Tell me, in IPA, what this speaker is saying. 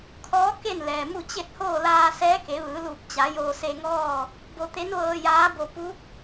kʰ ɔː˧˥ k e˥˨ n l ɛː˩ m u˥˨ t͡ɕ e˥˨ t̚ h oː˥˨ l aː˧ s ɛː˧˥ k e˩˧ ʋ ɯː˩˧ l u˧˩ p̚ t͡ɕ a˩˧ j oː˧ s e˧ ŋ ɔː˥˨ | b o˧ t̪ e˧˥ n ʋ ɤː˧ j aː˧˥ b o˧ p u˧˥ k̚

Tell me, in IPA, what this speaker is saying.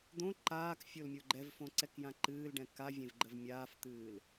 d̪ õ ǃ aː k fʲ o l mʲ o ɡ͡ǃ ɛ v f õ ǀ ɛ k j ã ǃ ɨː l ɖ ɛ̃ k a vʲ ẽ v ɡ͡ǃ ə v mʲ aː f t̪ ɨː l

